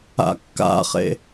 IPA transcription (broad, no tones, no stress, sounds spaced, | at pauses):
a̰ kː a̰ χ ḛ